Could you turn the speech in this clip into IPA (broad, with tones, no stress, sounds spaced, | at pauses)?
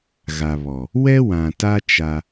ɣ a˨ β ɔ˨ | w ɛ˦ w ã˨ t a˦ t͡ʃ a˦